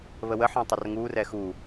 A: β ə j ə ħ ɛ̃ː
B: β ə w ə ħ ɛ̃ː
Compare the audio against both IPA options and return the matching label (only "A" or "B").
B